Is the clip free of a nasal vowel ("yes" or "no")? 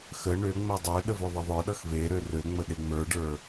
yes